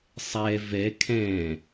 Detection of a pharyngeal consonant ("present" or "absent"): absent